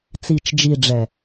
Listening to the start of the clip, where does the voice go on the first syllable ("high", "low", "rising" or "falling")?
low